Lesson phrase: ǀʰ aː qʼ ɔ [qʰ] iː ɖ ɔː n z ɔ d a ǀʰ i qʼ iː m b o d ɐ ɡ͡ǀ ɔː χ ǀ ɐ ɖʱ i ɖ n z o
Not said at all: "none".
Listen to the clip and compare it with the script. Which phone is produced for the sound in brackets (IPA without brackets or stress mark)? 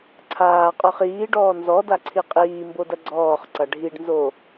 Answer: χ